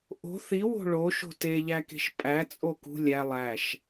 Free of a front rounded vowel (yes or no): yes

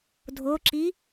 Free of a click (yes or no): no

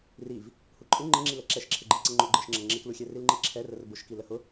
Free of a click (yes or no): no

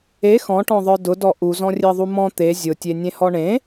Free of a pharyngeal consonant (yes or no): yes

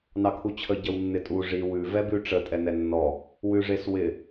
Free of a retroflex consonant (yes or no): no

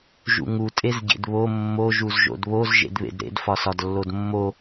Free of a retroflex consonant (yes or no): yes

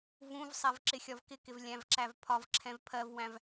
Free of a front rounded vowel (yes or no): yes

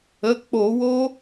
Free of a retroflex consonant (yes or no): yes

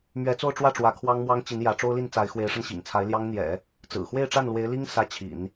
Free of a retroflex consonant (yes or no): no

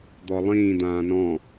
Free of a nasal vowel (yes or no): no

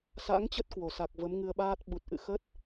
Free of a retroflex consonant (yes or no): yes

